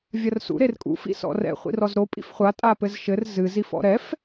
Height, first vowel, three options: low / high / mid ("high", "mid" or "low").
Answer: low